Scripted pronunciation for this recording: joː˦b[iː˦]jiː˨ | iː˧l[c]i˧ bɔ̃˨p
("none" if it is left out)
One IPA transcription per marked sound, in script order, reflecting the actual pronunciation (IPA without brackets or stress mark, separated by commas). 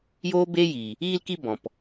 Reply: eː˦, k